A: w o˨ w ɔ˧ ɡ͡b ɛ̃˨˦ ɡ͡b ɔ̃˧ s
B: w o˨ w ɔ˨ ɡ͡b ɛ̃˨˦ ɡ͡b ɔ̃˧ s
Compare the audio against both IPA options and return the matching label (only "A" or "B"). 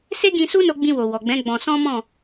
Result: B